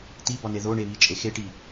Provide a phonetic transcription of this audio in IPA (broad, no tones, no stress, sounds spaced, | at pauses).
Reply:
t̪ i b ɒ n e ð o ɳ e β i t͡ʃʼ e x e ʈ i